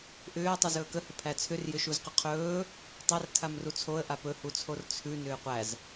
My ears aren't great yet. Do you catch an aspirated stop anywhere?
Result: yes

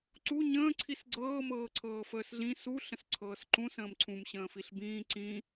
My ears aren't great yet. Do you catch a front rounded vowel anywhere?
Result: no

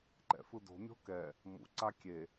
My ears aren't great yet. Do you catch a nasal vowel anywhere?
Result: no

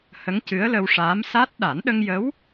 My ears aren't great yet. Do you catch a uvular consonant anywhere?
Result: no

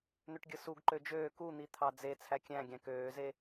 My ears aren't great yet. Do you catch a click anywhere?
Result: yes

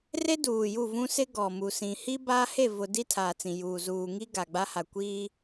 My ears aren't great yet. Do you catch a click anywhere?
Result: no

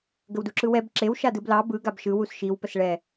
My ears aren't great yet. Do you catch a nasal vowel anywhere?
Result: no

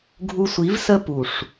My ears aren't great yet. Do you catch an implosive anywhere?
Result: no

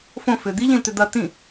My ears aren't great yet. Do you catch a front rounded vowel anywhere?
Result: yes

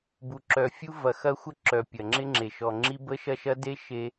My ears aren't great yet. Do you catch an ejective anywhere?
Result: no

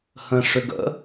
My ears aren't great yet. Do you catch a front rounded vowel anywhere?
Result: yes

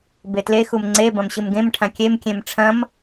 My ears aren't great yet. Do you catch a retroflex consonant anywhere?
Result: yes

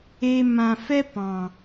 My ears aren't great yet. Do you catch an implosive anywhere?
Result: no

